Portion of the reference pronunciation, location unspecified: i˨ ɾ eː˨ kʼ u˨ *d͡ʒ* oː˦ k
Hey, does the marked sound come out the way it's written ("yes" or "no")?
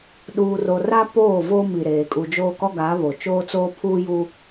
yes